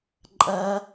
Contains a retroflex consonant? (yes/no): no